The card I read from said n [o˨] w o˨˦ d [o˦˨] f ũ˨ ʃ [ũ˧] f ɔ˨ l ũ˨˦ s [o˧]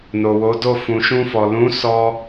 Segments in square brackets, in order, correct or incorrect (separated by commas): correct, correct, correct, incorrect